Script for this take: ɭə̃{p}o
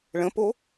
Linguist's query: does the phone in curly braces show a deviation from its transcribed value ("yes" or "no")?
no